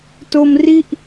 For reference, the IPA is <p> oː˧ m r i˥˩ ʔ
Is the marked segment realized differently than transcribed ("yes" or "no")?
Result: yes